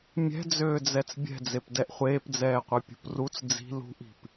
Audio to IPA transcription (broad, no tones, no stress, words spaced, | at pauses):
mʲɛ̤d͡zøːd͡zɛt͡s bʲɛ̤d͡zepdɛʔ χʷeːpd͡zɛːqʷɛpʲṳp rut͡s d͡zi̤ lṳʔi̤p